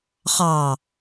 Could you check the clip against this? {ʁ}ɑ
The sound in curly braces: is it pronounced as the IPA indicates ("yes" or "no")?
no